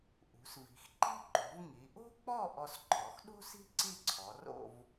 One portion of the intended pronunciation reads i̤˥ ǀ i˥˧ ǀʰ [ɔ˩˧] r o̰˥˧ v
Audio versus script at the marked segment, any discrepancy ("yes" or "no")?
no